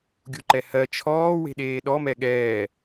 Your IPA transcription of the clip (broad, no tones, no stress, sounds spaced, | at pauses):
ɡʲ u ǃ ɛ h ɜ t͡ʃʰ ɔː w e̤ ɗ eː ɗ ɔ m ɛ ɠ ɛː